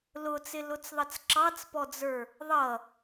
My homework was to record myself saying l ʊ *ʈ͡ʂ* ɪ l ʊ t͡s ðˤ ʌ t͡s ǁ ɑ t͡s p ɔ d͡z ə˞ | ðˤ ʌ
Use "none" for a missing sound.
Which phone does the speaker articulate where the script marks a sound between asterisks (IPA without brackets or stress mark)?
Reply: t͡s